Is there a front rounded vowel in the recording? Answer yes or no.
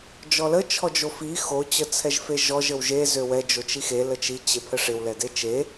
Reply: yes